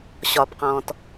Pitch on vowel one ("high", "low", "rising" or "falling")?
low